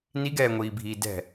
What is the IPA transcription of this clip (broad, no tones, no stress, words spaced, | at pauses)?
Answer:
niɡɛːŋʷiːbʱiː dɛ̤